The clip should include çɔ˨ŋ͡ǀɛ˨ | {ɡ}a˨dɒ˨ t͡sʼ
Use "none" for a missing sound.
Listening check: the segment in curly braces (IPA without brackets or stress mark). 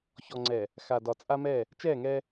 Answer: x